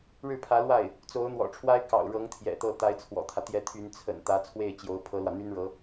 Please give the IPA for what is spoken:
ɻ ɻ̩˥˩ pʰ ä˧˥ l w a˥˩ ɪ̯ | t͡s o˧˥ ʊ̯ n̪ w ɔ̰˨˩ ʈ͡ʂʰ w a˥ ɪ̯ k ɑ̰˨˩ ʊ̯ ɻ ɤ˧˥ ŋ t̪ʰ j ɛ̰˨˩ t̪ ɤ˥˩ t̪ a˧˥ ɪ̯ t͡sʰ w ɔ̰˨˩ t̪ʰ ä˦ t̪ j ɛ˧˥ t̪ʰ y˧˥ n t͡sʰ ə̰˨˩ n t̪ ä˧˥ t͡sʰ w e˥˩ ɪ̯ t͡ɕ j o˧˥ ʊ̯ pʰ ɤ˥ l w ä˨ n̪ y˥ n ɻ ɤ˧˥

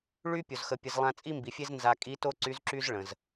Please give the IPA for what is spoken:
ɭ y˥ pʲ o˩ z x ə˩˧ pʲ ə˩˧ z lˠ ã˧ t͡sʼ i˥ m b i˩˧ fʲ e˥ z n z a˧ kʼ i˧˥ t o˥ ǀ y˧˥ z ǁ y˥ z ɭ ə̃˩ z

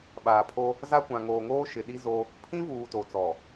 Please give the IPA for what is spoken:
ɓ aː˨ pʰ o˦ | z a˦ kʷ ã˨ ŋ oː˨ ŋ oː˦ ʃ ɪ˨ ɗ i˦ z o˦ | pʰ ĩ˦ v uː˨ t o˨ t͡s ɔ˨

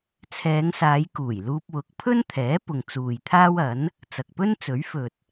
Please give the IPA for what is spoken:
t͡sʰ ɛː˨˧ ŋ s aː˨˧ j k uː˨˩ j l uː˧ p̚ w ʊ˨˥ k̚ pʰ ɵ˥ n t̪ʰ ɛː˨˥ p ʊ˨ ŋ t͡s uː˨ j t̪ʰ aː˥ w ɐ˨˥ n | t͡s ɐ˨ k̚ p ɵ˥ n t͡s ɵ˨˥ ɥ f ɵ˨ t̚

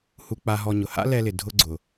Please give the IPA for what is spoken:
h u˧ k͡p a˧ ɦ ɔ˧ ɲ ʊ˨ h a̰˦ l ɛ˧ l ɪ˨ dʱ ʊ˧ ɡ͡ǀ ʊ˨

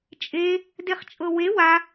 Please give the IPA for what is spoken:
t͡ʃʼ e | d e χ t͡ʃʼ ɤ w e w a

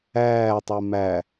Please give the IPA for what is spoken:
æː tˤ e m æ

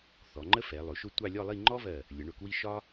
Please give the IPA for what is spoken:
θ ɔ˩˧ ŋ͡ǃ ə˥ f ɛ˩˧ lˠ ʊ˩˧ ʃ ʊ˥˧ tʷ ɑ˥˧ lʲ ɔ˥˧ lˠ i˥˧ ŋ͡ǃ ɔ˥ v ɜ˧˩ | lʲ ə˩˧ ɳ ʊ˧˩ k w i˥˧ ʃ ɒ˥

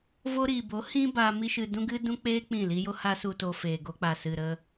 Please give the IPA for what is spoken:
v o˧ ɾ iː˨ b o˨˦ h ĩ˦ b a˧ m i˦ ʃ ɨ˧ d ũ˦ ɡ ɨ˦ d ũ˦ k͡p eː˦ k͡p ĩ˦˨ l i˦ j o˦ h a˦ s u˨ t o˨ f eː˨ ɡ o˧ k͡p a˨ s ɨ˨ ɾ ə˧

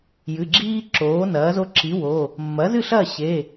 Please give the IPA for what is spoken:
j ɨ˩˧˩ ɡ͡ǁ iː˦ ǁ oː˩˥ n ɐː˩˥ z o˦ ǁ i˩˥ w oː˩˧˩ | mː ɐ˩˥ z ɨ˥˨ ɬ ɐː˥˨ ɕ eː˩˧˩

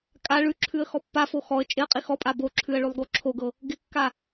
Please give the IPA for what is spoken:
kʼ a ɭ ʉ ǁʰ ʉ ə̯ x ɔ pː a f o x ɔ ə̯ t͡ʃʼ ɪ ə̯ qʼ i x ɔ pʼ a b o ǁʰ ʉ ə̯ ɭ ʉ lˠ ɡ o ǁʰ o ɡ ɤ | ɡ ɪ kː a

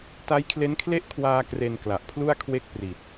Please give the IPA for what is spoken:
t a˦˥ j kʰ l e˦˥ n kʰ l e˥˩ ʔ kʰ w aː˧ k r e˧ n k l a˨˩ ʔ pʰ l u˥˩ a̯ kʰ w e˥˩ k̚ p r i˨˩ t̚

